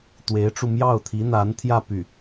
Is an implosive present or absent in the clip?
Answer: absent